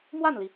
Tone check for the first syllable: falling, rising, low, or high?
falling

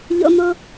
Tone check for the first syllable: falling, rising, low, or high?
high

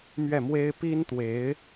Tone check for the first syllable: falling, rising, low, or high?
falling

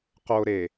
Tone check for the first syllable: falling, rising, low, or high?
high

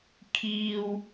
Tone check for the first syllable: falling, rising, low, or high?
high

